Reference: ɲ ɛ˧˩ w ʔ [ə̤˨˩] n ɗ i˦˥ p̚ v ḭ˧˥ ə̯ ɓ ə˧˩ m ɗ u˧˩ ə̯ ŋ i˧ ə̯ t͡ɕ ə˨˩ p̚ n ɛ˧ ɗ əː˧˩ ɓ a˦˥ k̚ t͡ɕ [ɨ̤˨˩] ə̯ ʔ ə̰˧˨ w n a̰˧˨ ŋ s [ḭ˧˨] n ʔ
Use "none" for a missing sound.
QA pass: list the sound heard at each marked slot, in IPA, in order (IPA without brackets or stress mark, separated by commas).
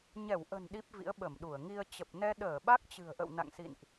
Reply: ə̤˨˩, ɨ̤˨˩, ḭ˧˨